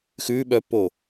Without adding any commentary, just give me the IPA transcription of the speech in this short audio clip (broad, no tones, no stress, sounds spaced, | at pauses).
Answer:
x ʉː ɓ œ pː oː